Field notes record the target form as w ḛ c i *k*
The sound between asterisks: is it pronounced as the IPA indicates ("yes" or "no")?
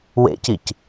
no